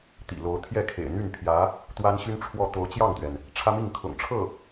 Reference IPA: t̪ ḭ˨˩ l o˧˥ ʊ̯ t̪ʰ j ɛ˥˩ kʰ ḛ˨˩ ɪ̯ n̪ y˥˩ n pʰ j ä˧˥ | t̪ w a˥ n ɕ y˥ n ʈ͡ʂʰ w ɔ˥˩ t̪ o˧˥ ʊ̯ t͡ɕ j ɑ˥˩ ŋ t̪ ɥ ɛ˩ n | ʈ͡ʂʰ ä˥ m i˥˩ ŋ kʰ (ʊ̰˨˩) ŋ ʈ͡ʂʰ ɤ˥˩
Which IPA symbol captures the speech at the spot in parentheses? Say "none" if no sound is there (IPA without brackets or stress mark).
ʊ̰˨˩